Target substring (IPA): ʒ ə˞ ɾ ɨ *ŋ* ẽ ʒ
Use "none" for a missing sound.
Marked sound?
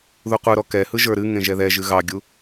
ŋ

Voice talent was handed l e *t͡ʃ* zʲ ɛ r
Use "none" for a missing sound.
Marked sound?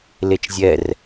t͡ʃ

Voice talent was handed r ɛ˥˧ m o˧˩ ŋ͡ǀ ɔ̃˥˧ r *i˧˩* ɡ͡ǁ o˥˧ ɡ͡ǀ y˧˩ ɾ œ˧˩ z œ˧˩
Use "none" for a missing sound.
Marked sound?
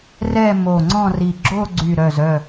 i˧˩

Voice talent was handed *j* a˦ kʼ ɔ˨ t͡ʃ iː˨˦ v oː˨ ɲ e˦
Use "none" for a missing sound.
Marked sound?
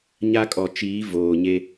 ɲ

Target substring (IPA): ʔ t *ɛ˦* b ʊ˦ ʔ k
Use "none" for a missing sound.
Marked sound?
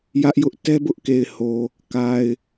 ɛ˦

